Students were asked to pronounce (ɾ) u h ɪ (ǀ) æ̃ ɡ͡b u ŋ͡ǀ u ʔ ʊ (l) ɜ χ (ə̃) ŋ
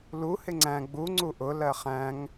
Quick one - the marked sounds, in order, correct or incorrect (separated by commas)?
incorrect, incorrect, correct, incorrect